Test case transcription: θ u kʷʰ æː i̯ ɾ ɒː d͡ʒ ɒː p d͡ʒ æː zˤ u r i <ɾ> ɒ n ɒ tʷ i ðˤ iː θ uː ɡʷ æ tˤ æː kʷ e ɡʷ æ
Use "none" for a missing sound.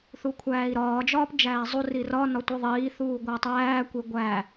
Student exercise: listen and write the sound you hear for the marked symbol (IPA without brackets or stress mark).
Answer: r